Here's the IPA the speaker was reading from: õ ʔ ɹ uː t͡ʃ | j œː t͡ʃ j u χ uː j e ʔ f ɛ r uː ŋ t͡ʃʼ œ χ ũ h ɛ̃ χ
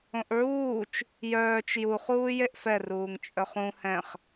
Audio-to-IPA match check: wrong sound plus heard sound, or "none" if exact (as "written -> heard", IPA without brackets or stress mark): none